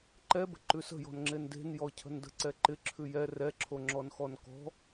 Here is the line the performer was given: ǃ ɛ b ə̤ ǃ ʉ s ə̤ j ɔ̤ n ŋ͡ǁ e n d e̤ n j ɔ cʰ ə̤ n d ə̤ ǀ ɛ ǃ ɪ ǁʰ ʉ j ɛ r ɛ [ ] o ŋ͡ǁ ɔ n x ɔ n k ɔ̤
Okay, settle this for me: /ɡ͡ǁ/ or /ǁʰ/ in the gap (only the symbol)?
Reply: ǁʰ